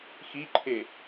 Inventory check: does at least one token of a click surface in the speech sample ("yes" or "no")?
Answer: yes